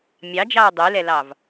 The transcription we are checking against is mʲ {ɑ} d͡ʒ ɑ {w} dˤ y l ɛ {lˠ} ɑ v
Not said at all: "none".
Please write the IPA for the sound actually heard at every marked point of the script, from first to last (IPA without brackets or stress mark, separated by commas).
ɑ, ɹ, l